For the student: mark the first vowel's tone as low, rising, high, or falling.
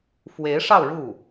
rising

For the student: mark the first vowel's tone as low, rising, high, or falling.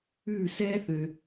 falling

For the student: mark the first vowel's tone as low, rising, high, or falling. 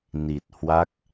low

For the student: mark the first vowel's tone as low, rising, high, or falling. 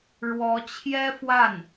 rising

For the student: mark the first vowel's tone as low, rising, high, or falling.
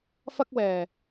high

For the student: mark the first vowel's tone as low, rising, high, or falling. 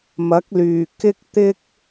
rising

